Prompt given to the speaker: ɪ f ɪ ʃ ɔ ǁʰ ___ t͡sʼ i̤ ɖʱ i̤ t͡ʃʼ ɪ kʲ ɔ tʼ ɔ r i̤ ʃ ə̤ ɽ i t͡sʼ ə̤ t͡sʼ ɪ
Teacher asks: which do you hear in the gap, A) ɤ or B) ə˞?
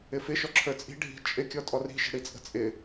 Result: B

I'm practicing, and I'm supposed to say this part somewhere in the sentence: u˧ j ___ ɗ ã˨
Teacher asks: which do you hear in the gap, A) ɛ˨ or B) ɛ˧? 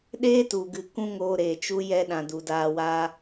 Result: B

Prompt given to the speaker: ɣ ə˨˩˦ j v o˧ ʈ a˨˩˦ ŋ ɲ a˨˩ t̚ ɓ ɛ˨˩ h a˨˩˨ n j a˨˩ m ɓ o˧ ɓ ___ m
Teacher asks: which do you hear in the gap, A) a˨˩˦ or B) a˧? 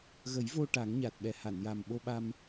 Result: B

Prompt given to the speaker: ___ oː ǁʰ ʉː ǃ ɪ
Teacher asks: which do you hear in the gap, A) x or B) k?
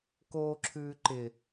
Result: B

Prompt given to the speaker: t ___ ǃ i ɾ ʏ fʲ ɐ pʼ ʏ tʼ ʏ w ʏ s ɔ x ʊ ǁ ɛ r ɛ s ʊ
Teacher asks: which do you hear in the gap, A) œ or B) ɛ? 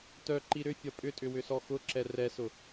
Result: A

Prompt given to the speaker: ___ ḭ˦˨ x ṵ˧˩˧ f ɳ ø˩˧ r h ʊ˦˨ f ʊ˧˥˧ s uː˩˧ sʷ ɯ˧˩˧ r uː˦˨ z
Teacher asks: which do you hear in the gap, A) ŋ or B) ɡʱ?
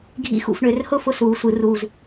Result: B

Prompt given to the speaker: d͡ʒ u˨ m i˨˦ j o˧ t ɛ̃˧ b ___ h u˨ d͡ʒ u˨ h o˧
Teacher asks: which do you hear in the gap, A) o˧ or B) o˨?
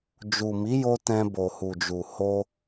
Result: B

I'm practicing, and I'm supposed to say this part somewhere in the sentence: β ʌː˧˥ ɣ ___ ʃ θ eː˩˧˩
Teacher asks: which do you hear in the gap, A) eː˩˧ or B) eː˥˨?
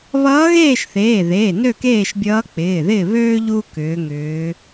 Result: B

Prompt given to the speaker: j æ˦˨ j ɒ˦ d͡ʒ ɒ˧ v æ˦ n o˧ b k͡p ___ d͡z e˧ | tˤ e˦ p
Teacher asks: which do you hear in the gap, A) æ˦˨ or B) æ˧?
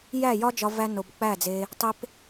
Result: A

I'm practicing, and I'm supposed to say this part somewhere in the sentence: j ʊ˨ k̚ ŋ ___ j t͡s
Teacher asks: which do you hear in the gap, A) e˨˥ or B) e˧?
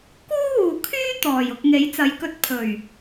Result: A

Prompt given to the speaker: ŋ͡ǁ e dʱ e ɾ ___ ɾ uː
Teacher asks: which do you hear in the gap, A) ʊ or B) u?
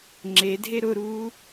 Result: A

